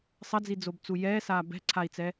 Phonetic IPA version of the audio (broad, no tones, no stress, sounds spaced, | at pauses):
sˤ ɐ d͡z i d͡z o b t͡s u j ɛː s aː b ɛ̤ ǀʰ a i̯ t͡s ɛ